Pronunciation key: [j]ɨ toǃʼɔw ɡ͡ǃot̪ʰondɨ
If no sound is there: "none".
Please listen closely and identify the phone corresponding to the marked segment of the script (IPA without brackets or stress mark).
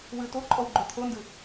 w